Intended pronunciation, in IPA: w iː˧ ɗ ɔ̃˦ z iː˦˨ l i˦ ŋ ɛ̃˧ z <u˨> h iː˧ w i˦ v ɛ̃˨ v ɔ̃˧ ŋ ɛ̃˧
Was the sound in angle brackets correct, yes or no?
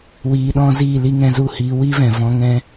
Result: no